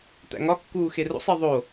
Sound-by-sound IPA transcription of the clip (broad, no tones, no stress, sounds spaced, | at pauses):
t̪ æ̰ ŋ ɒ kː uː x e r o̰ sˤ e ðˤ o